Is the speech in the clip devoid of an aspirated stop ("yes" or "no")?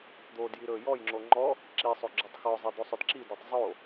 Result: yes